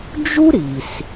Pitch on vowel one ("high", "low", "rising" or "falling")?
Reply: high